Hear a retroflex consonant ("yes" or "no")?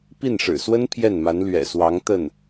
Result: yes